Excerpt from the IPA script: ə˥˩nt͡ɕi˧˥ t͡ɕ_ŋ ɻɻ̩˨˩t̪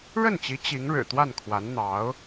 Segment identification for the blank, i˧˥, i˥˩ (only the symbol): i˧˥